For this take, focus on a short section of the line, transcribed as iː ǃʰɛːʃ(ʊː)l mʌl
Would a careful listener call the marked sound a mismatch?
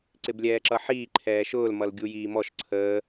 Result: no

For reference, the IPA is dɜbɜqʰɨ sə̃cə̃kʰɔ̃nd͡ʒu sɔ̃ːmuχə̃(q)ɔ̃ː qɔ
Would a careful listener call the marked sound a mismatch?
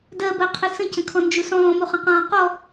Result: no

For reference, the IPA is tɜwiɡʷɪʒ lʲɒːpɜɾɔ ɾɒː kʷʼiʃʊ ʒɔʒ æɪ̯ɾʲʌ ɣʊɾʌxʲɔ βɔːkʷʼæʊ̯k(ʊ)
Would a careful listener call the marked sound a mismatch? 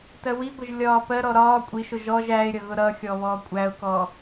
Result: yes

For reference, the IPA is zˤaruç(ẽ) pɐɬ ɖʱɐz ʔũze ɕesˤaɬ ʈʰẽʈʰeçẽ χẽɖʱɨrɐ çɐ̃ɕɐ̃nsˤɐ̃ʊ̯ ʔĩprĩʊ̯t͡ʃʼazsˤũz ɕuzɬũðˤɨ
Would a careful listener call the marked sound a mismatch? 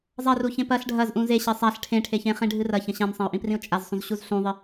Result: no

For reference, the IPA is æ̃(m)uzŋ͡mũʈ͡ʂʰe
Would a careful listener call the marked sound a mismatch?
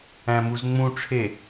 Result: no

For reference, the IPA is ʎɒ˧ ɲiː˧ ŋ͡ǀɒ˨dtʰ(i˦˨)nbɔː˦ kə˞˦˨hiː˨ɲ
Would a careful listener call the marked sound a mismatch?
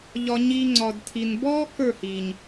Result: yes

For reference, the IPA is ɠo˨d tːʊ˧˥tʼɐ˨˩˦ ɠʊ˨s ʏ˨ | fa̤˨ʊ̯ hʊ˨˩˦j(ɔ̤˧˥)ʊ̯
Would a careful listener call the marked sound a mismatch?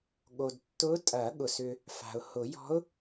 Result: no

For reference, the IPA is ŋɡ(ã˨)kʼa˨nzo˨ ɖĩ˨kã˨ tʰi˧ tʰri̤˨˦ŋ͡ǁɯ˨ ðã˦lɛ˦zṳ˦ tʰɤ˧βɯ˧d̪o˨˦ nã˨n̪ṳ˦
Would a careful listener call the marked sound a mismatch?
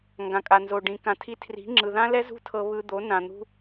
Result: no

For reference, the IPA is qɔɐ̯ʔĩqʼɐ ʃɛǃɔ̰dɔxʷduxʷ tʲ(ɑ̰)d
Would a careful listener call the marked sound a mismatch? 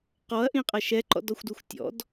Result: yes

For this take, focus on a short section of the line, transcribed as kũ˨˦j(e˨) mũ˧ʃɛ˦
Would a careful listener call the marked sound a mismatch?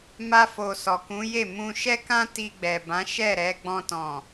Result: yes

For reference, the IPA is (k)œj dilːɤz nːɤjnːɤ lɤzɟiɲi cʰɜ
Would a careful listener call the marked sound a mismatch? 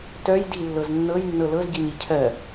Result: yes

